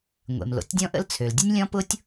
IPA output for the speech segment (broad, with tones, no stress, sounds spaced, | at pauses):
ŋʷ ḛ˩ m l o̰˩ tʲ dʲ ɔ̃˥ ʔ ə̰˥ l t͡sʰ ø˩ l dʲ ə˥ nʲ lʲ ɔ̃˥ p ʊ˥ tʲ